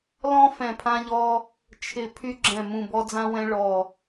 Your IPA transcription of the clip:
l ɔ̃˥ f ɛ̃˦˨ pʰ ã˥ ʎ ɔ˥ | t͡ʃʰ ɪ˦˨ pʰ y˥ ɡ͡ǁ ɛ̃˦˨ m ũ˦˨ b ɔ˥ d͡z ã˥ w ɛ̃˥ ɭ ɔ˦˨

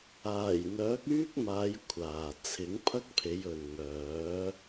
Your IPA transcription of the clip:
aː˨˩ j n̪ œː˨˥ k̚ yː˥ k̚ m aː˨˧ j kʷʰ aː˨ t͡sʰ ɪ˨˥ ŋ pʰ ɐ˥ k̚ pʰ e˨˧ j ɵ˨ n ŋ œː˨˥

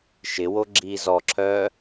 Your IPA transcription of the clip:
ʃ ɪ w o ɡ͡ǁ iː z ɔ ǁʰ œː

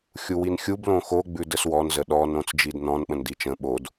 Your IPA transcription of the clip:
xʲ u w i n xʲ u b l õ x o ɡ͡b ʉ d ə s w ɔ n z ə ɗ ɔ n õ t͡s d͡ʒ i d n ɔ̃ n ɓ ə̃ n d i t͡ʃ ə̃ ɓ o d

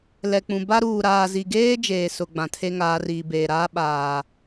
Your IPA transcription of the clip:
l ɛ˨ k͡p ũ˨ b a˦ ɾ uː˨ ɾ aː˨ z i˨ ɡ eː˦ d͡ʒ eː˨ s ʊ˨ ɡ͡b ã˨ tʰ e˦ ŋ aː˨˦ r iː˨ b eː˨ ɾ aː˦ ɓ aː˨

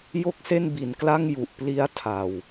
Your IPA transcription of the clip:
j o˥˩ k̚ s e˥˩ n b i˩˦ n k l a˥˩ ŋ j u˨˩ ʔ p l i˦˥ a̯ tʰ a˨˩ w

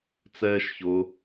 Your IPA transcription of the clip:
t͡s ɛː ʃ ç ʊ

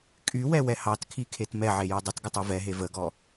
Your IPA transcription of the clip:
kʼ y w ɛ w ɛ h ɑ t kʰ i kʰ e t m ɛ ʕ e j u dˤ ə t ɡ ə tˤ u v ɛ ɦ e v ə ɡ ɔ

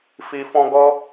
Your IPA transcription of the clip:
f i˨ f ɔ̃˦ ɡ ɔ˥

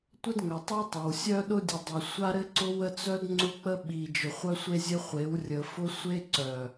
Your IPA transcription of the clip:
tʷ ə˦ d ŋ œ˨ tˤ i˦ tˤ œ˨ w sʲ œ˦ ɗ ʊ˦ dʲ ɘ˨ dˤ a˨ sʷ a˦ ɾ ɘ˦ ǀ ʊ˦ w ə˦ t͡s œ˦ d ŋ͡ǀ ʊ˦ k͡p ə˦ ɓ i˨ d͡ʒ ʊ˨ χʷ œ˦ sʷ e˦ zʲ ɘ˦ χʷ e˨˦ w rʲ ə˨ f ʊ˦ sʷ e˦ ǀ œ˨

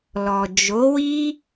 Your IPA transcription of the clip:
l ɔ˨ d͡ʒ o˨˦ w i˦

